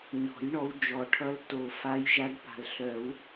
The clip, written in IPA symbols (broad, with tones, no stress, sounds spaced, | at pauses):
ɲ ɔ̤˨˩˦ j ɳ ɔ˨˦ w d͡ʒ ɔ˨˩˦ ʈʰ ʌ˨˦ l t o˨˩ f a˨˦ j ʒ a˨˦ ɖ p a̤˨˩ l ɬ œ˨˩˦ w